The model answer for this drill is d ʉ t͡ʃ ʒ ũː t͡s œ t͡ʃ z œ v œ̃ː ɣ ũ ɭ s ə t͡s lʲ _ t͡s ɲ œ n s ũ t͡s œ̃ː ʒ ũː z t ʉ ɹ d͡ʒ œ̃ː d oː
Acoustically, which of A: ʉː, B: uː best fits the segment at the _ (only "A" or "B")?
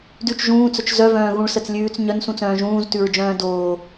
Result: A